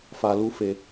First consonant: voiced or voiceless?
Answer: voiceless